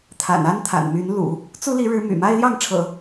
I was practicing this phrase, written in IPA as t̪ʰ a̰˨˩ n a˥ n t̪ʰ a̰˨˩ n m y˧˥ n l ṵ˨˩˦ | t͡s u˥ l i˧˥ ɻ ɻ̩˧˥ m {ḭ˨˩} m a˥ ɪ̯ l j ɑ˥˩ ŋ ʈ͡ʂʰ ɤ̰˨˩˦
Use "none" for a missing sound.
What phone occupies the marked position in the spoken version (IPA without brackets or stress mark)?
y̰˨˩